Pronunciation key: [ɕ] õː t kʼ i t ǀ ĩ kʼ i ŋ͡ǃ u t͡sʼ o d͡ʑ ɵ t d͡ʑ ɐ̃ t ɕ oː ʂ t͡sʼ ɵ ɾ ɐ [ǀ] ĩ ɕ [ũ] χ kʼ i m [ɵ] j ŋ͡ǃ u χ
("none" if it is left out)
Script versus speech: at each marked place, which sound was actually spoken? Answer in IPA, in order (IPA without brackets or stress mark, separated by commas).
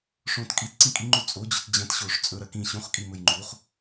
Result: ʂ, k, ũ, ɵ